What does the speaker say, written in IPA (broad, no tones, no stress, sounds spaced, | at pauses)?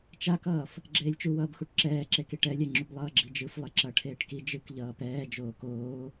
t͡ʃ a k ʌː f | ɡ͡ǁ eː lʲ t͡ʃ u w ʌː b x u ʈ ǁ ɛː ǁ e k i ʈ ɛ lʲ ɛ ŋ͡ǁ u b lˠ ʌː ɡ͡ǁ i d͡ʒ ɯ f lˠ e ǁ ʌ ʈʰ eː ʈ k i d͡ʒ ɯ k ʎ ʌː p ɛː d͡ʒ oː k oː